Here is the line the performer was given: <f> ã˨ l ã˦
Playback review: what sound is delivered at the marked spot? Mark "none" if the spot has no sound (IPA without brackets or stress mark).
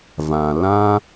v